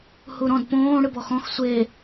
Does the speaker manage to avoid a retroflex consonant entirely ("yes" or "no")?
no